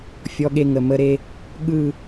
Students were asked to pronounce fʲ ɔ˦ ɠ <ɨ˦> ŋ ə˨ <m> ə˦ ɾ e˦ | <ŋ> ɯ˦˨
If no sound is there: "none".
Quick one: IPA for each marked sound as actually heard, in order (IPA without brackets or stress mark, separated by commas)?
e˦, m, ɠ